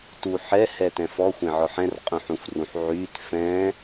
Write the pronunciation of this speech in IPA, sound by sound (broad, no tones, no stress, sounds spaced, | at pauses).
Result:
t u ħ ɛ h ɛ t ɛ̃ f ɔ xʷ ẽ ʕ ɔ ħ ɛ̃ r qʼ ũ ħ ũ f r ũ ħ ʕ y t f ɛ̃